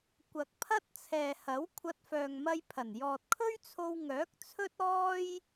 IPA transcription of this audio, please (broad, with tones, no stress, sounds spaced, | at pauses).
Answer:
kʷ ɐ˨ k̚ pʰ ɐ˥ t̚ t͡sʰ ɛː˨ h ɐ˨˥ w kʷʰ ɐ˧ t̚ f œː˨ ŋ m ɐ˧ j pʰ ɐ˨˩ n j ɔː˨ t̚ kʰ ɵ˥ ɥ t͡sʰ o˧ w ŋ œː˨˥ k̚ t͡sʰ ɵ˥ t̚ ɔː˥ j